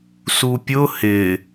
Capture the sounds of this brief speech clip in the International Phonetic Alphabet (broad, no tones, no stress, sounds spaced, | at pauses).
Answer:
s u pʲ ʊ h ɪ